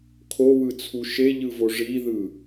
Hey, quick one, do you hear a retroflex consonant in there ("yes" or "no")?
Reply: yes